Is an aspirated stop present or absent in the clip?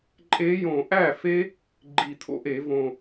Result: present